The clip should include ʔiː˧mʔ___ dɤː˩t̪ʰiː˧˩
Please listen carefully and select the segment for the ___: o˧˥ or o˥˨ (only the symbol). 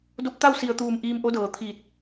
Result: o˧˥